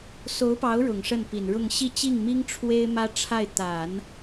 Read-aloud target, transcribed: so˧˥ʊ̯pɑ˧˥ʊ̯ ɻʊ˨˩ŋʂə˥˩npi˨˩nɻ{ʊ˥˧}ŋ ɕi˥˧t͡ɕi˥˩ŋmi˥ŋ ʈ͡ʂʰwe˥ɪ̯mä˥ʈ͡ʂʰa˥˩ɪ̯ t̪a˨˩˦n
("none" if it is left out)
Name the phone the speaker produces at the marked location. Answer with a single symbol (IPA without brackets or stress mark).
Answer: ʊ˥˧